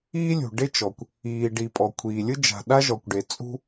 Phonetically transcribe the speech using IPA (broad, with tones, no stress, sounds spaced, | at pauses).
iː˥ lʲ ṳ˩ ɖ e˥ t͡ʃ ɔ˩ kʷ | iː˩ ɖ i˩ pʼ ɔ˩ kʷʰ iː˩ lʲ ɯ˥ d͡ʒ a̤˩ ɗ a˥ ʒ ɔ˩ kʷ ɖ e˩ t͡sʼ ṳ˥